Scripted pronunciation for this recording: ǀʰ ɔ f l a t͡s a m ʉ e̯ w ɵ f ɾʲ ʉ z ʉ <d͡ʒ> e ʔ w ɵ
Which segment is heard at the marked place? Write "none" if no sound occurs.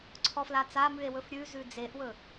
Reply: d͡z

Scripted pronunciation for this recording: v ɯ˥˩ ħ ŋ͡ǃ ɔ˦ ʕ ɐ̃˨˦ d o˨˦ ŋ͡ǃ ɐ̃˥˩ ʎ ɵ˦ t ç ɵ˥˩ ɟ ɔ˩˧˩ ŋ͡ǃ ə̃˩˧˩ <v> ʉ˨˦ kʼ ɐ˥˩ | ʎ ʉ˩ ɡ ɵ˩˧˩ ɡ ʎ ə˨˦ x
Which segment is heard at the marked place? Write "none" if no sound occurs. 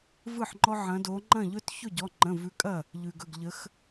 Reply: v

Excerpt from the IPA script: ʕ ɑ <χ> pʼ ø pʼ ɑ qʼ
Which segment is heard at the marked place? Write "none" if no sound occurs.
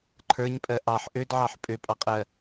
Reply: ħ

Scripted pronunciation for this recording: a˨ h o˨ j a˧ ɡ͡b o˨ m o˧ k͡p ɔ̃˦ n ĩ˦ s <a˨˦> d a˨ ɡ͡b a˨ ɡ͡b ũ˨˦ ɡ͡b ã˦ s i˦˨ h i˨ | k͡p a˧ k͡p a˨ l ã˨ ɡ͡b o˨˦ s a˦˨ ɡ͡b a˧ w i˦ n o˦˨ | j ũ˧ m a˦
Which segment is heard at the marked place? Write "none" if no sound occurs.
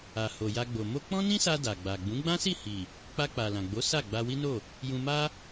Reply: a˧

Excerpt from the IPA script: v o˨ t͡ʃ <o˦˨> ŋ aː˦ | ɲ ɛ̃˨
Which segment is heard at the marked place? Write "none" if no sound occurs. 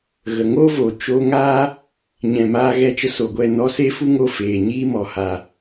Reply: o˧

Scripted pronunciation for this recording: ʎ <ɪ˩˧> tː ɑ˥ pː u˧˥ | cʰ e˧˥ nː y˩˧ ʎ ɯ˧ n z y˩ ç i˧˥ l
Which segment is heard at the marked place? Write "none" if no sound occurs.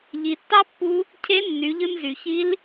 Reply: i˩˧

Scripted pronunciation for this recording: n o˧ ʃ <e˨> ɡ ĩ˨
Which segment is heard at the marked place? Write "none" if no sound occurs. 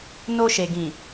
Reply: e˨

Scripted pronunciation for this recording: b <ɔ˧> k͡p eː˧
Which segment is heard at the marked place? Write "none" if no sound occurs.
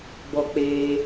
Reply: ɔ˧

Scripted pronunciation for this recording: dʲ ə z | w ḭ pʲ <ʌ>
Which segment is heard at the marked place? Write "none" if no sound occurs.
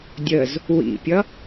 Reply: ʌ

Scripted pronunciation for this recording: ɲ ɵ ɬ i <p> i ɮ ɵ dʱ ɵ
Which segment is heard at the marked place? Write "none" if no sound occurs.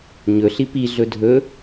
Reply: p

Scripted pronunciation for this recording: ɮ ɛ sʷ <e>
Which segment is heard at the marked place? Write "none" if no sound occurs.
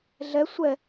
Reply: ɛ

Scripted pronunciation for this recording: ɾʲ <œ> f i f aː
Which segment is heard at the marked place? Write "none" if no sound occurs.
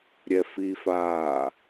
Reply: ɛ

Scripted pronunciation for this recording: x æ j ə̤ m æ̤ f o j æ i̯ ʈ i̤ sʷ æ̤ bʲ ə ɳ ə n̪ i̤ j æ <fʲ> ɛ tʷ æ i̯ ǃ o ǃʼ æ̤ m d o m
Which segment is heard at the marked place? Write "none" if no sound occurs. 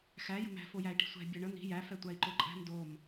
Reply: f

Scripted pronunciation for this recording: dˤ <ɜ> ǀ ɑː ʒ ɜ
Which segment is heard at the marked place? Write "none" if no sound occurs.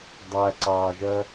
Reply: æ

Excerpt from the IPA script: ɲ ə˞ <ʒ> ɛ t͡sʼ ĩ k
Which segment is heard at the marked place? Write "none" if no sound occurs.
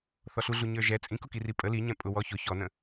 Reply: ʒ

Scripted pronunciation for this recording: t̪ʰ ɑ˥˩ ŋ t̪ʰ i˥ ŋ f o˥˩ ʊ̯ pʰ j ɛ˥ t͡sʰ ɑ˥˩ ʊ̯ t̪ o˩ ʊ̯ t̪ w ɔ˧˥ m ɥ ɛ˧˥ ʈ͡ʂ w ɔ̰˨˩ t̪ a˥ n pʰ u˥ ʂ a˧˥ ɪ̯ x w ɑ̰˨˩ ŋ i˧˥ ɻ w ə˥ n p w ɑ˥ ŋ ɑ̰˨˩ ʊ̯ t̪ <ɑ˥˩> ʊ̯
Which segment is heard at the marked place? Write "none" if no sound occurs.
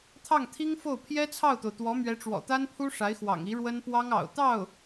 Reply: ɑ˥˩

